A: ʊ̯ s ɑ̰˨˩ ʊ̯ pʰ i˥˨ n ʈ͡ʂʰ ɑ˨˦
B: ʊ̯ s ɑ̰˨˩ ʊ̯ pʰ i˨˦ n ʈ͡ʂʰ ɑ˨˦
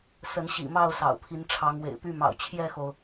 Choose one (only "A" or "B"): B